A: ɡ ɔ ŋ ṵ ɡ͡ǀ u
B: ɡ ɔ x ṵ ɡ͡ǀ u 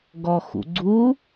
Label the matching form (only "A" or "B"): B